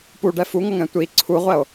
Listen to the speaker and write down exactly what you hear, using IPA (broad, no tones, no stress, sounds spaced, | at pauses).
p u ɖ ɛ f u ŋ ʌ ŋ ɛ̃ tʷ i ǀʰ u ʁʷ ɛ o̯